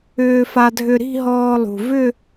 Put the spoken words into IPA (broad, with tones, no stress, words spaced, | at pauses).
ʏː˧fa˧dʱʏ˧ ɾi̤˥˧ɦɔː˧lˠṳ˩ vʏ˥˧